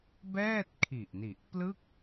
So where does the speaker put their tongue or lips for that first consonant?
lips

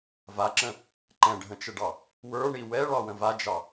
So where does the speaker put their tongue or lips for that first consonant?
lips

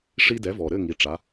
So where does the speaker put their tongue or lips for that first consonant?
retroflex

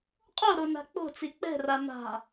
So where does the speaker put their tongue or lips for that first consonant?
uvula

